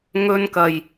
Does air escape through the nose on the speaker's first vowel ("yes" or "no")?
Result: no